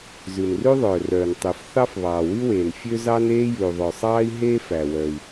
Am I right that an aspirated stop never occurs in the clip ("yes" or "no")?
yes